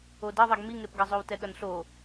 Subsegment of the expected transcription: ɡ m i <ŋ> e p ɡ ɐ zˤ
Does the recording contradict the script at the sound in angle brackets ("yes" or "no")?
no